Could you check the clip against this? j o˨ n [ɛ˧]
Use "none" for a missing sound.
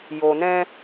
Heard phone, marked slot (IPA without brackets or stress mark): ɛ̃˧